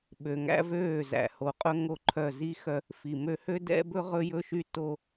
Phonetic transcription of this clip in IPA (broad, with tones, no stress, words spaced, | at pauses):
ɓø˨ŋæ̰˦vøː˦˨ zæ̰˨ho˨ qʼɵ˦ ŋo˦˨ǃʰœ˦˨ zi˦xœ˦ | fi˨mø˦ hø˦dɛ̰˦bɵ˦ ʁɵ˦jɵ˦ʃy˦ to˦